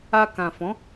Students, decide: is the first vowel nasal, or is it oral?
oral